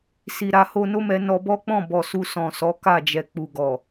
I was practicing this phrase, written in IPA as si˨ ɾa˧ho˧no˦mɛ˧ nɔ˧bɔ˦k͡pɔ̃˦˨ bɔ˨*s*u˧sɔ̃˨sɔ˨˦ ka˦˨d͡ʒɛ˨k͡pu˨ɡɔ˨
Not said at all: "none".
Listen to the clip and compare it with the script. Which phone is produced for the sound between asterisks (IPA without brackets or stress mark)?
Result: s